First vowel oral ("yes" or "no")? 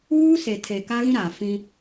yes